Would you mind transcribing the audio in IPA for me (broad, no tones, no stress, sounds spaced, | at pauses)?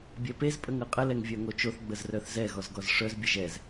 bʲ ɛ p e z pʼ ə ŋ ɤ qʼ ə l ɛ ŋ vʲ œ ŋ o t͡ʃ o θ ɡ͡b ə z r œ θ z ɛ ɣ ɔ z ɡ ɔ z ʂ œ z bʲ ə ʒ ɛ z